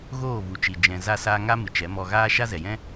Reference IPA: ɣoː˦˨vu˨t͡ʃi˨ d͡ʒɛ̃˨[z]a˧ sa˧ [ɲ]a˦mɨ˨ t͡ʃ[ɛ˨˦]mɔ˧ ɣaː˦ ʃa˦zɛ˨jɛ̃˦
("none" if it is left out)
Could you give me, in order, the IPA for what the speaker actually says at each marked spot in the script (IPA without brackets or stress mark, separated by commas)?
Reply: z, ŋ, ɛ˨˦